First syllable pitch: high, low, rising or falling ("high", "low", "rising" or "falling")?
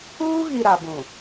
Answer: high